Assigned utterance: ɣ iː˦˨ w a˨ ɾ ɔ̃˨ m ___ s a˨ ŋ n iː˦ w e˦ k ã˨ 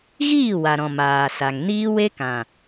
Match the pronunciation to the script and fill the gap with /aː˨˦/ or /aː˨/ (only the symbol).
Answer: aː˨